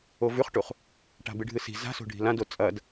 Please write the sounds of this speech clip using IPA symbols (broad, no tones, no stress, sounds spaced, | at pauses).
o v ʉ χ ʈ u χ | ʈ a̤ b ɨ ɖʱ ɨ s i̤ z a̤ s o̤ ɖʱ i̤ l ã d o t͡sʼ ɐ d